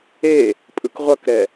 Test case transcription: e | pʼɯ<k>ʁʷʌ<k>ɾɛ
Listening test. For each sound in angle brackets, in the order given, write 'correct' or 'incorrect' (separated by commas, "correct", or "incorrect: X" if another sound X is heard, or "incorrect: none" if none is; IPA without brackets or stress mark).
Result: correct, correct